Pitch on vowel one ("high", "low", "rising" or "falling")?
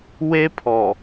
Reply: high